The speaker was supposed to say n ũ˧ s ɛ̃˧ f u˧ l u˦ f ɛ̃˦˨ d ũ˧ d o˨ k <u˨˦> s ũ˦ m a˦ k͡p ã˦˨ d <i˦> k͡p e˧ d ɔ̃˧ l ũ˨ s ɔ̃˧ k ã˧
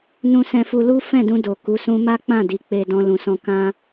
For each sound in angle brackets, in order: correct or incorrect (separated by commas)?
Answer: correct, incorrect